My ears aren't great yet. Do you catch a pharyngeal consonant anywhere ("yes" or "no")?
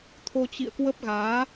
no